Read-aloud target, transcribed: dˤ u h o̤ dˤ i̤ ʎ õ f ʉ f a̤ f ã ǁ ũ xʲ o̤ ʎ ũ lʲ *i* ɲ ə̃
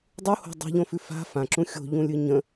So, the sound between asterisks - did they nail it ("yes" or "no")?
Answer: no